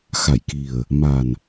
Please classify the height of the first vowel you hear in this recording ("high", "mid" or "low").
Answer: low